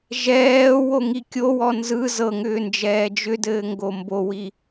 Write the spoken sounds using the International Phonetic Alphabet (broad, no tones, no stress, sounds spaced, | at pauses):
ʒ ɛː w o ŋ i kʲ o w ɔ n z ɯ z ɤ ŋ ʏː n d͡ʒ ɛː d͡ʒ ʏ d ɘː ŋ ɡ o m b o w i